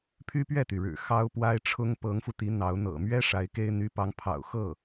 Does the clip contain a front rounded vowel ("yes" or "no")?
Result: yes